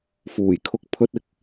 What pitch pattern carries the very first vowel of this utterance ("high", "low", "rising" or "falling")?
low